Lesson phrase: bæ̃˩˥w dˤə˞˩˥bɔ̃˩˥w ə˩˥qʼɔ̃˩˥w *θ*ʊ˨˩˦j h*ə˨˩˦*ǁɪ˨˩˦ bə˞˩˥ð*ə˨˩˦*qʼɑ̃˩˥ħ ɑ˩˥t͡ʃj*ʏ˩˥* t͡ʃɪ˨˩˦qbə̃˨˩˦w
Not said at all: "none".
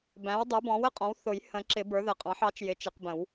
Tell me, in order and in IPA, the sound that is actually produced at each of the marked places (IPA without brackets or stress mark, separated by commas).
θ, ə̃˨˩˦, ə˨˩˦, ɪ˩˥